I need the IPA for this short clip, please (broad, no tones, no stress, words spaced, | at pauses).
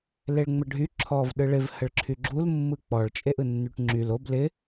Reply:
leɭŋ͡məɖʱy ǁʰɔv ɗɯɭɪv həɭǁʰyɡ͡ǁul mːɯk͡pɔɭ t͡ʃʼeʔɯnːyʈŋ͡ǁyl ob lɪ